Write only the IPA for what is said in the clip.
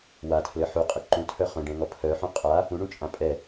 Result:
w a tʰ l ɘ ħ u qʼ ɘ ǃ ũ tʰ œ χ œ̃ ɖ ɛ̃ ŋ ɔ pʰ œ ħ ũ qʼ a | ũ ɳ ũ t͡ʃʼ ã pʼ ɛ

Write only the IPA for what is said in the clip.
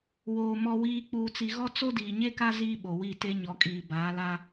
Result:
w oː˨ m ɔ˨ w iː˨ k͡p uː˨ t͡s i˨ ɣ ɔ˦ t͡s o˦ d iː˨ ɲ e˦ k a˦ z iː˦ ɓ o˨ w i˦˨ t e˦ ɲ ɔ˨ kʼ iː˨ b aː˨˦ l a˦

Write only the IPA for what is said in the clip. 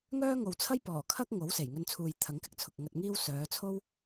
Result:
ŋ œː˥ ŋ o˨ w t͡sʰ ɐ˥ j p ɔː˨˩ kʰ ɐ˥ k̚ ŋ o˨˥ w s e˨˩ j ŋ ɵ˧ n t͡sʰ uː˨ j t̪ʰ ɐ˨˥ ŋ k ɪ˧ k̚ t͡sʰ ʊ˨ k̚ ŋ ɐ˧ t̚ ŋ iː˥ w s œː˨˧ t͡sʰ o˥ w

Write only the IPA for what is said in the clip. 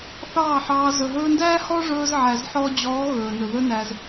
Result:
θ ɑː˦˨ ħ ɑː˧ z ɵ˨ ɦ ɵː˧ n d æː˦ h ɔ˦ ʐ ɵː˧ z ʕ æ˨ z ħ ɔː˧ d͡ʑ ɔː˨˦ ɣ ɵː˨ n ɵ˨ ð ɵ˦ n æ˧ z

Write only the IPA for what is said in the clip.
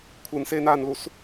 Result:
kʷʰ ɯ n s eː n aː n l u s

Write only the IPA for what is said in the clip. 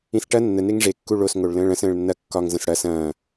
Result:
ĩ s ʈ ɐ nː ə n e ŋ ʐ e kː u ɭ o s ŋ o ɭ l ə̃ː ɭ ɐ̃ s ə̃ː ɭ nː ɐ kː ɒ ŋ z ə̃ s ɽ ɐ s ɐ̃ː

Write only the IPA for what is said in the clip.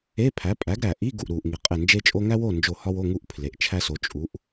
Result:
e˧˥˧ pʰ æ˩˥ pʼ æ˩˥ ɡ ɾ æ˩ ʔ i˧˥˧ ɡ u˩ ʔ ɾ u˩ ʔ ŋ i˩ qʼ e˧˩ n d͡ʒ e˥ t͡ʃʼ o˥ ŋ æ˥ w o˥˨ n d͡ʒ o˧˩ h ɒ˥ w o˧˥˧ ŋ u˥˨ ʔ pʰ l e˩ ʔ t͡ʃʰ æ˥ s o˩˥ t͡ʃʼ u˩˥ ʔ

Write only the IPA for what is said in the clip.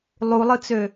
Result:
lˠ u lˠ ɯ t͡s ø

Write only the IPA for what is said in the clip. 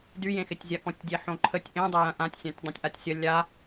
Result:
d y j ẽ x ɪ tʲ zʲ a k ɔ̃ tʲ dʲ e ħ õ ǃʰ ə tʲ ʔ ẽ dˤ e j ɐ̃ ʔ ã tʲ sʲ ã tʲ dˤ ẽ tʲ ʔ a tʲ sʲ ɐ lʲ a

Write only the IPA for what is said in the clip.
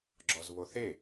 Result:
ɡ͡ǁ ɔ z β o θ e

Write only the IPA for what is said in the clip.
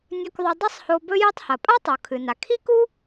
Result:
nʲ ɵ˧ k ðˤ ɵ˧ dˤ ɐ˥ sˤ h o˧ b ɵ˧ j ɨ˧ tˤ h ɐ˩ pʼ a˥ tˤ u˩ kʰ ɨ˩ n a˩ kʰ i˥ k u˥

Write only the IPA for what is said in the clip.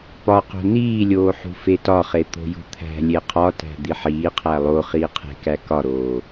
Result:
p ɒ q o̤ n iː lʲ oː ħ ṳ f e t ɒ χ e t̪ o̤ j ṳ t̪ʰ æ̤ lʲ e qʰ ɒ t æ̤ d̪ i ħ iː qʰ æ lˠ o χ iː qʰ e̤ k æ k ɒ ɾ oː

